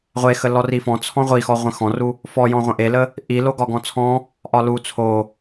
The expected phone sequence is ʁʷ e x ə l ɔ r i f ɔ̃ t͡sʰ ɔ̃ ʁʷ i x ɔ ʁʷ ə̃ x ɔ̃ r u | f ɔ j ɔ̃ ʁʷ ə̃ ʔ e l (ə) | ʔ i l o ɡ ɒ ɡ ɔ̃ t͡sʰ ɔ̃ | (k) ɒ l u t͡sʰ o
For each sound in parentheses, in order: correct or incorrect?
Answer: correct, incorrect: ʔ

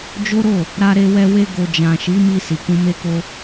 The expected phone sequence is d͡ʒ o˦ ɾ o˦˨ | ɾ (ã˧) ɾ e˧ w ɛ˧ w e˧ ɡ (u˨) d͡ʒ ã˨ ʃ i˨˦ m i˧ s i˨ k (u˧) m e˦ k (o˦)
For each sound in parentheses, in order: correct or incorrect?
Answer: incorrect: a˧, incorrect: o˨, incorrect: ũ˧, correct

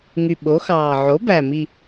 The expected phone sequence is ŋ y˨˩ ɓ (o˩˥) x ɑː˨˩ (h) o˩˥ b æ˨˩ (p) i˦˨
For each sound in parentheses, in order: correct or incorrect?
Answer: correct, incorrect: ʕ, incorrect: m

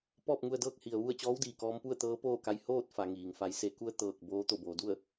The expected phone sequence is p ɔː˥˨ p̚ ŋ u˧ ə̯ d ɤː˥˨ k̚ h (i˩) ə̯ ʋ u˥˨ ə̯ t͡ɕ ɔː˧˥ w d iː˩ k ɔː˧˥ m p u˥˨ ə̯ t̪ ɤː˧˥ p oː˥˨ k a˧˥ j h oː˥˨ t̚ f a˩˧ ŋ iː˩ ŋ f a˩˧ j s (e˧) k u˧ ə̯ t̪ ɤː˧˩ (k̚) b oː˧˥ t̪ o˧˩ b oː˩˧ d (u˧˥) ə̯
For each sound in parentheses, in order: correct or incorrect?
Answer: correct, incorrect: e˩˧, correct, incorrect: u˥˨

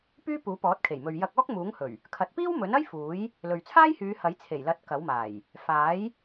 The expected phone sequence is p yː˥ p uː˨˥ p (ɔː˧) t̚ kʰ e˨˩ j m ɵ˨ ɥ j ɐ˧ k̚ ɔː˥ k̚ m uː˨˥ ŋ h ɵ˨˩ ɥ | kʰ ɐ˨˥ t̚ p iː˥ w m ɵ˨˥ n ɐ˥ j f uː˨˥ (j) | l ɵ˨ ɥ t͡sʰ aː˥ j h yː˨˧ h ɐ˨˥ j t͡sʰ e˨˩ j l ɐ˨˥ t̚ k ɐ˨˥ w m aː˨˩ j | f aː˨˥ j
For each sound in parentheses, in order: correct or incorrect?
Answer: incorrect: ɔː˨˥, correct

